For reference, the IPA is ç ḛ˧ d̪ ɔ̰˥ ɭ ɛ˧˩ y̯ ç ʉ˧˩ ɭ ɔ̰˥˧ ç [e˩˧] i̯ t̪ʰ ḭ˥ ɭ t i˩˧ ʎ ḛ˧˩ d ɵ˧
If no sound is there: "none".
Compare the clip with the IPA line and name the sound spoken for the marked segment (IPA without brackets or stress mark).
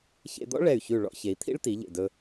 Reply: e˩˧